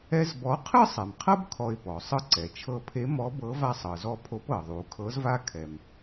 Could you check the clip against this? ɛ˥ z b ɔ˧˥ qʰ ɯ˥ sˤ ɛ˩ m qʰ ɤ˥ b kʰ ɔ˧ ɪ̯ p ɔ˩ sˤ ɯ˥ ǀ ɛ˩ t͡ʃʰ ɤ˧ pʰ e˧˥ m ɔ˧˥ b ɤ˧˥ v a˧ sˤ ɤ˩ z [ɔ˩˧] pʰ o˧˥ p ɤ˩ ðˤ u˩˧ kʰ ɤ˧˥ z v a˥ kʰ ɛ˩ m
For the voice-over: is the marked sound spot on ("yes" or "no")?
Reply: no